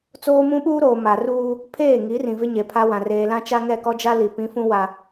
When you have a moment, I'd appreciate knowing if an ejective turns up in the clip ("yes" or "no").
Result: no